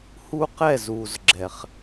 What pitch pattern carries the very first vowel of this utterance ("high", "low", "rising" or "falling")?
high